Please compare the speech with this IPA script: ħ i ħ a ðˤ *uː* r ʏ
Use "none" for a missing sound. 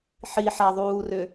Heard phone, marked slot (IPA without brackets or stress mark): uː